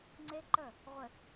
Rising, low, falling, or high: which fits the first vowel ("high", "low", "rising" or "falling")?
high